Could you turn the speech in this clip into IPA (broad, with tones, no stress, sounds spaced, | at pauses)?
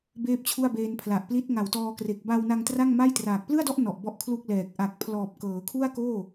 b eː˥˩ p̚ t͡ɕʰ u˥˩ a̯ b eː˧ n pʰ l a˨˩ ʔ p l i˦˥ t̚ ŋ a˨˩ w t ɔː˧ k r e˨˩ k̚ b a˧ w n a˧ ŋ t r a˥˩ ŋ m a˥˩ j t r aː˨˩ k̚ p l ɯ˥˩ a̯ d ɔ˥˩ ʔ n ɔ˨˩ ʔ b ɔ˦˥ ʔ kʰ l u˥˩ k̚ l ɛː˨˩ k̚ ʔ a˨˩ k̚ pʰ l ɔː˨˩ p̚ k ɤː˩˦ kʰ u˥˩ a̯ k oː˥˩